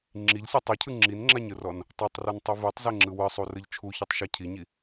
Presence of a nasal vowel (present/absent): absent